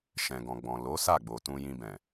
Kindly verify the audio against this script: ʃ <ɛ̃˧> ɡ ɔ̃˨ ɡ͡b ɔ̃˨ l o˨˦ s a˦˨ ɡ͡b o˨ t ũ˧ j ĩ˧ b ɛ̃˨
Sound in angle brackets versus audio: incorrect: ɛ̃˨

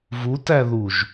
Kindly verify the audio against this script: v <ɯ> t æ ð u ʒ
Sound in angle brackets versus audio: incorrect: u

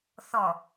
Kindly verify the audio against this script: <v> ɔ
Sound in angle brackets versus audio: incorrect: θ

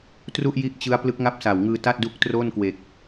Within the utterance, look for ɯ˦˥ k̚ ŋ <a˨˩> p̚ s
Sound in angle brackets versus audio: incorrect: a˥˩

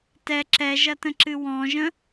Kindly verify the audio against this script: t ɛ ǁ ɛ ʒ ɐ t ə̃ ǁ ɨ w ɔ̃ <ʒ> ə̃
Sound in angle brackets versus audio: correct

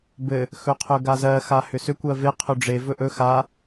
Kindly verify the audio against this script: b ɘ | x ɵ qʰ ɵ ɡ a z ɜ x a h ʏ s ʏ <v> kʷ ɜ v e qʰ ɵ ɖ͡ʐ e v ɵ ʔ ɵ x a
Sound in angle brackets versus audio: incorrect: none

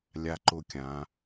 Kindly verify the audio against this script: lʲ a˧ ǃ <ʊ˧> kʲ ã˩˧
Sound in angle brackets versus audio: correct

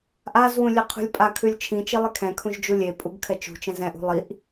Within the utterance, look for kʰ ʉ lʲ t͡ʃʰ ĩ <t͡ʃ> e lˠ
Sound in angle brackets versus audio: correct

